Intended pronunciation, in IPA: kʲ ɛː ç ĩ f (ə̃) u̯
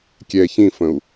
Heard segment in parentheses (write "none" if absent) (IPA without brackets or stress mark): ə̃